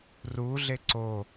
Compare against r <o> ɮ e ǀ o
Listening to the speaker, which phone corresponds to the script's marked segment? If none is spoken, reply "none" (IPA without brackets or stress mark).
u